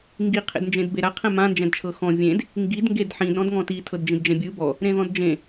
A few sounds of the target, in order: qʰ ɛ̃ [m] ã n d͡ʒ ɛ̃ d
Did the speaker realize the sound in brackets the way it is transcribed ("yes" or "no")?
yes